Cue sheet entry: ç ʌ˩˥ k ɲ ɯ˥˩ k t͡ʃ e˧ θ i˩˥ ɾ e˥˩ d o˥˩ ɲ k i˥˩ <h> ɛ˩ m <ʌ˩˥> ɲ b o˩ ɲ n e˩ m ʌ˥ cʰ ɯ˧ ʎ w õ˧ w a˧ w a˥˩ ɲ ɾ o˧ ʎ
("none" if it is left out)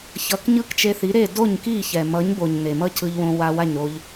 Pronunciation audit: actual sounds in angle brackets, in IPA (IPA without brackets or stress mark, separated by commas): ç, ʌ˩˥